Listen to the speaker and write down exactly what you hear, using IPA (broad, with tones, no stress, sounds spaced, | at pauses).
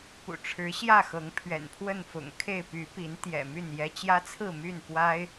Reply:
p ṵ˨˩ ʈ͡ʂʰ ɻ̩˨˦ ɕ j ä˥˨ x ɤ˨˦ ŋ pʰ ɥ ɛ̰˨˩ n pʰ w ə˥˨ n f ʊ̰˨˩ ŋ kʰ e˥˨ ɪ̯ p y˨˦ p i˨˦ n t̪ j ɛ̰˨˩ m y˥˨ n j ɛ˦ t͡ɕ j ä˦ t͡sʰ ɹ̩˥˨ m y˥˨ n p w a˦ ɪ̯